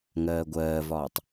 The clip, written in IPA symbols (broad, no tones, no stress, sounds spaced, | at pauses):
ŋ ɜː ɡʷ ɜː v ɒː tˤ